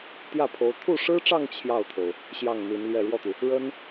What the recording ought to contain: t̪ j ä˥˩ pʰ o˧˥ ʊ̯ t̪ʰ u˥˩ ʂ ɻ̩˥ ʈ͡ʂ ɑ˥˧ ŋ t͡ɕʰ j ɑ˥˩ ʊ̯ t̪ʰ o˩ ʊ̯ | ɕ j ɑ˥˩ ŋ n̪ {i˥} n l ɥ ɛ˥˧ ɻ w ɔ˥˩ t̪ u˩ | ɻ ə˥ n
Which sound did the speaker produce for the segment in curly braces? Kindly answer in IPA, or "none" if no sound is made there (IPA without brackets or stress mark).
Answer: i˧˥